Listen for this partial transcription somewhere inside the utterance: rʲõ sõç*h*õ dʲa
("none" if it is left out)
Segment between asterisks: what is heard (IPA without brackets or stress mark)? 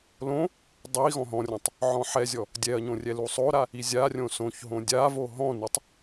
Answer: ɦ